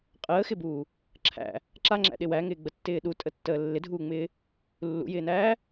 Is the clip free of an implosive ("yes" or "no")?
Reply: no